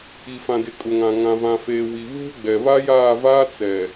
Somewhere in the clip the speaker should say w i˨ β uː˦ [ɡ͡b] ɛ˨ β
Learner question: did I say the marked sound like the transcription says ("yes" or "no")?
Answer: yes